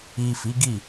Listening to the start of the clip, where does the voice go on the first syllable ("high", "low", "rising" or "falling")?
low